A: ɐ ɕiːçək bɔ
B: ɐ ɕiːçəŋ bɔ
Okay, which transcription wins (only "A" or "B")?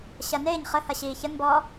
B